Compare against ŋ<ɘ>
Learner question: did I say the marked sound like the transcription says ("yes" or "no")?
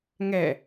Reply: no